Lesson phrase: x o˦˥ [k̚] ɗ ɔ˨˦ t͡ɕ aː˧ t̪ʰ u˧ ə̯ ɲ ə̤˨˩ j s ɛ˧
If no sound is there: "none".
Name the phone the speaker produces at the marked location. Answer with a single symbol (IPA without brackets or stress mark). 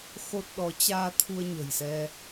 t̚